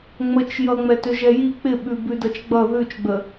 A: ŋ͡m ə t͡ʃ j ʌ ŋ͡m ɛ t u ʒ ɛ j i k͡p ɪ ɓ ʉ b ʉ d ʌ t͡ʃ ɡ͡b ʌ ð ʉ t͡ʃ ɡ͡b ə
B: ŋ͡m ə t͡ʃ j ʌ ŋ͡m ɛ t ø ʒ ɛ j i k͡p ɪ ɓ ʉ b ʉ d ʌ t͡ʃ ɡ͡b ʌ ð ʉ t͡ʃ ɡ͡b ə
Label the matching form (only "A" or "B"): B